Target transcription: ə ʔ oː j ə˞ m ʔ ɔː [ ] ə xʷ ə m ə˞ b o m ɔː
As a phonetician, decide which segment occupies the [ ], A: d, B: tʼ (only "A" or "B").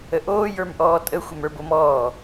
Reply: B